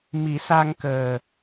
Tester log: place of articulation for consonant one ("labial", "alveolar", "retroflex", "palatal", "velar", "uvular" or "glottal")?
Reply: labial